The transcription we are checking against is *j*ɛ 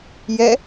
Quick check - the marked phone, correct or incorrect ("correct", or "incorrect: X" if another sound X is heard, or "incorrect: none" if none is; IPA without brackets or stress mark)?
correct